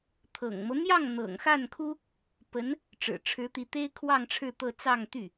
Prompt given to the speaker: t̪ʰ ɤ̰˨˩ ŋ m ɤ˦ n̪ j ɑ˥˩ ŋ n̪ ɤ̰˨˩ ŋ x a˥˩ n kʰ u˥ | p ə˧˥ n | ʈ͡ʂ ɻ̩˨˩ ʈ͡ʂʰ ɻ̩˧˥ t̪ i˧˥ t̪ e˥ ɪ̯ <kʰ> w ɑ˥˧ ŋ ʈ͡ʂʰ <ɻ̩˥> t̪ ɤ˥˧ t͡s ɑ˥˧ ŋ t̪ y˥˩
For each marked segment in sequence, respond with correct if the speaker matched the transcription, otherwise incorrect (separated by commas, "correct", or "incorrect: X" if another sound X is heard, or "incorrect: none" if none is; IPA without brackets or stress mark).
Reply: correct, incorrect: ɻ̩˥˧